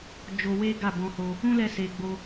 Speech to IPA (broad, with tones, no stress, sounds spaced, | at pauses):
d͡ʒ o˧ w e˦ ɡ a˦˨ b ɔ̃˧ h o˧ | ũ˦ l ɛ˧ s e˨ ɡ͡b o˧